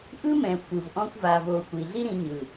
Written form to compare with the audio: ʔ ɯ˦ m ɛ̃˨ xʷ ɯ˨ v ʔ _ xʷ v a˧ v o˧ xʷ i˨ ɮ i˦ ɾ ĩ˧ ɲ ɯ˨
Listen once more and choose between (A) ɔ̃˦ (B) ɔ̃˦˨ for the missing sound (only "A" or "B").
A